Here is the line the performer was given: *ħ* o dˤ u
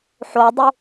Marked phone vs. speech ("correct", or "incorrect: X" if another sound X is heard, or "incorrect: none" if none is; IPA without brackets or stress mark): correct